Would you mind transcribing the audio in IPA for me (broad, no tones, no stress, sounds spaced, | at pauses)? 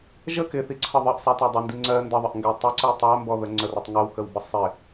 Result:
ʒ ə k ɪ θ i ǀʰ ʌ ðˤ ʌ ʔ sˤ æ t ɒ dˤ ʌ n d i ŋ͡ǀ ɜ n d ə ðˤ ə ʔ ŋ ɡ æ tˤ ɪ ǀ i tˤ æ m b ɔ ð ə ŋ͡ǀ ə r ɔ tˤ ŋ ɜ w k ə w b ə sˤ ɪ